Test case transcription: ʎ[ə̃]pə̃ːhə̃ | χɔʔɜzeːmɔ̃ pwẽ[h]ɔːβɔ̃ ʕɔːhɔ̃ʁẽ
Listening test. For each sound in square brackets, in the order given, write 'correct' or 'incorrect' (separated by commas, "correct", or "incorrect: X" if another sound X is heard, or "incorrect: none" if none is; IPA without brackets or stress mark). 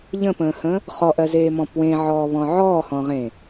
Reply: correct, incorrect: ʕ